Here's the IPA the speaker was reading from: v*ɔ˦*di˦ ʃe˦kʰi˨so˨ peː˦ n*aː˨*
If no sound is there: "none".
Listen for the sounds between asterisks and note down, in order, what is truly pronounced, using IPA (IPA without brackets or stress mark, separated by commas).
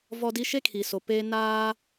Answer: ɔ˦, aː˦